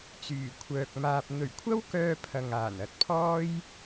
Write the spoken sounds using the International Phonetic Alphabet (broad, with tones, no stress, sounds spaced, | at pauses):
t͡s yː˨˩ kʷʰ œː˨ k̚ m aː˧ p̚ n̪ ɵ˨˩ ɥ kʷʰ ɐ˥ w k œː˧ pʰ ɐ˨ ŋ aː˨˩ n ɐ˨ t̚ pʰ ɔː˥ j